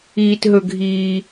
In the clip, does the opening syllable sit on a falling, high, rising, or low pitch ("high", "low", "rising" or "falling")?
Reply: low